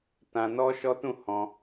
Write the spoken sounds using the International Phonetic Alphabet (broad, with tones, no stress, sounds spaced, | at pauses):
t ã˧ n ɔ˦ ʃ ɔ˦ t ũ˦˨ h ɔ̃˧